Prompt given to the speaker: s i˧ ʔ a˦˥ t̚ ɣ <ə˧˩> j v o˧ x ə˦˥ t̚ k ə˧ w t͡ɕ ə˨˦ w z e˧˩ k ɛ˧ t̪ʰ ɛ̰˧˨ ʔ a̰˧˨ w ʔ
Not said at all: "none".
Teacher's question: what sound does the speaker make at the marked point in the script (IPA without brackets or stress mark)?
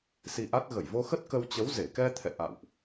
ə˧˩